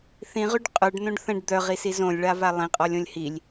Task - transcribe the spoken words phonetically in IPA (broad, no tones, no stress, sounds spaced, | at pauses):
θ ĩ ʁ y ɖ qʼ œ ɖ n õ ɖ θ ə̃ ɖ d̪ œ ʁ i s i z õ lʲ ɭ a v a lˠ ĩ qʼ ɔ lʲ õ lʲ h i lʲ